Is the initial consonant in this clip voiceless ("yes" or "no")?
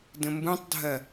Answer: no